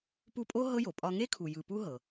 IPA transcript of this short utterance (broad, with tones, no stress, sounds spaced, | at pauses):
p u˦ pʼ o˥ ɦ ɤ˥ j o˩ pʼ ɒ˦ ŋ e˥ kʰ u˨ j ɯ˨ p u˦ ɦ ɤ˩